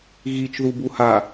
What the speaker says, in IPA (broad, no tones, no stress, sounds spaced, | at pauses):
ɣ i t͡ʃ ð u b u h a